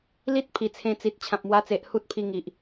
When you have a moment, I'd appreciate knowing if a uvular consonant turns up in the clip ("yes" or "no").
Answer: no